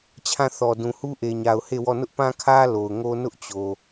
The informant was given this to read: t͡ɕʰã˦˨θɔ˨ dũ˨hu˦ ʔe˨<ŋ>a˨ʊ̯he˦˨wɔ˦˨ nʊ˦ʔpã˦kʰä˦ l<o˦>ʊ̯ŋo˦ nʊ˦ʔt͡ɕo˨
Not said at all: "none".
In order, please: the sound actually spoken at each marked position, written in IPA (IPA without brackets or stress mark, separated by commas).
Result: ɲ, o˨